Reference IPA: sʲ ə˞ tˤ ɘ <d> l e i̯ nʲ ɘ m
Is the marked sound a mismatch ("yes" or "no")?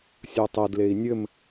no